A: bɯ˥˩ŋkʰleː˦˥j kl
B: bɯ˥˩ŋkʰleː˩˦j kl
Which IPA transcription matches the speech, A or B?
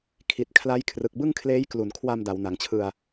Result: A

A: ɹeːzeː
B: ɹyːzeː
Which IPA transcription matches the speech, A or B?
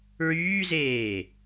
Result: B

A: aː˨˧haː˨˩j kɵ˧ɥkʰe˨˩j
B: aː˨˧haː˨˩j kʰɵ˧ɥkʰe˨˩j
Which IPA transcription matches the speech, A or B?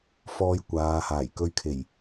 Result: A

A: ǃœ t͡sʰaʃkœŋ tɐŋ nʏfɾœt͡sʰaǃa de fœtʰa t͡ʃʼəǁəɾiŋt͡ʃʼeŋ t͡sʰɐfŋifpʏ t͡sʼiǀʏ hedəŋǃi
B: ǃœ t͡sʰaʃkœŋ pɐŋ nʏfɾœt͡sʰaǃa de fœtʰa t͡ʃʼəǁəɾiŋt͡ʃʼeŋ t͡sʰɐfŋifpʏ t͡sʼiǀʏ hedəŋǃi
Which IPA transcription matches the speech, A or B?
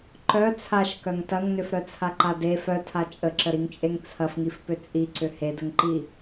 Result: A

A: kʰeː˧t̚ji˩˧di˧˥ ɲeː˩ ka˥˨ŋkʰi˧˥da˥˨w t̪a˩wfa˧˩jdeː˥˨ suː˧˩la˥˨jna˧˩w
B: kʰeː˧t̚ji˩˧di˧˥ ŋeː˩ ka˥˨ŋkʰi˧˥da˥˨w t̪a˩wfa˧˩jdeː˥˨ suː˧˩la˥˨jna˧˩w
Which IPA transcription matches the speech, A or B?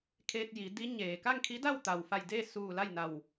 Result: A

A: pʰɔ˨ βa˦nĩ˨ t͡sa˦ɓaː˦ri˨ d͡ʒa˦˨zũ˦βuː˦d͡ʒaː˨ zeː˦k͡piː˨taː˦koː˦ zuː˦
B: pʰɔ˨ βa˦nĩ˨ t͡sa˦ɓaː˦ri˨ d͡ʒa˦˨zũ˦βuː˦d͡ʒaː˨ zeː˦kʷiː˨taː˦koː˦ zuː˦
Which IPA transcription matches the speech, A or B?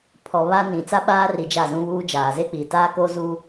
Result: A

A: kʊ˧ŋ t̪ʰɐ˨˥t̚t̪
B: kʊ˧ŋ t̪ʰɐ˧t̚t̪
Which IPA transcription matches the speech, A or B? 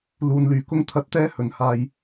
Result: A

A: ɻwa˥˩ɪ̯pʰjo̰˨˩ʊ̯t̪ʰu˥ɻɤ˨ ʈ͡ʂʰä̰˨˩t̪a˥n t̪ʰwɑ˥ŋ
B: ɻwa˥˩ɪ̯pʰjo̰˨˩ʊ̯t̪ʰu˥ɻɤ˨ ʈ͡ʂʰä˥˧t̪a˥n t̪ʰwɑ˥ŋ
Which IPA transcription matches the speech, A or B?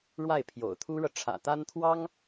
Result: A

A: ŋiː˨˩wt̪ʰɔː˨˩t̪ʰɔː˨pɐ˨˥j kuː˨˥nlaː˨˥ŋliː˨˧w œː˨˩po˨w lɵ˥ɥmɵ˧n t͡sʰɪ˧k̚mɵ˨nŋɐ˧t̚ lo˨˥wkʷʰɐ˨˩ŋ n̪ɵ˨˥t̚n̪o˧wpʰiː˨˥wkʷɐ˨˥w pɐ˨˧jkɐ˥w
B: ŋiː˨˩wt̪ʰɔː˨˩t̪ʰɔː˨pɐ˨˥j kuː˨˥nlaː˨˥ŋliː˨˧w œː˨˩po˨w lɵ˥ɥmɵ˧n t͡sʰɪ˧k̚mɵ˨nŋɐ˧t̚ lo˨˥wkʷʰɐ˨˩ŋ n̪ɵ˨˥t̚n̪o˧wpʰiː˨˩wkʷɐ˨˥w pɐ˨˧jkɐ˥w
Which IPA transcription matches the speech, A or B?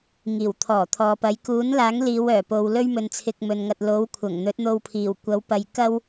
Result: B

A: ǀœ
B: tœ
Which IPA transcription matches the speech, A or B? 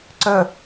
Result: A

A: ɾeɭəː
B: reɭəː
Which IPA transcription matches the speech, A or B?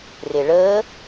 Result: B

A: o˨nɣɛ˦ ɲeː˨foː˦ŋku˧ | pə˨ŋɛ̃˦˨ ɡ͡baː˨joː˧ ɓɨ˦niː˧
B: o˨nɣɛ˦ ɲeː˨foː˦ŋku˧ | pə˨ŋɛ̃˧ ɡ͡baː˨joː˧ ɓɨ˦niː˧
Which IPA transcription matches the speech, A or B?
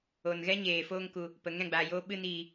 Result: A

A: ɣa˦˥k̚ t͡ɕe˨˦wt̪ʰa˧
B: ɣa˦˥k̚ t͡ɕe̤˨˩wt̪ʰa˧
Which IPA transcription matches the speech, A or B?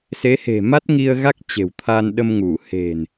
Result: B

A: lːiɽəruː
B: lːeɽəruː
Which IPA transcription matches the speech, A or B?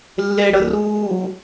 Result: B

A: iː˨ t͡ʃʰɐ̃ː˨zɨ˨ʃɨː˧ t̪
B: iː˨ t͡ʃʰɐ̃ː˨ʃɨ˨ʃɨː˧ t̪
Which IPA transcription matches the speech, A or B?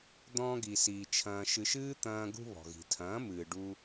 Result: B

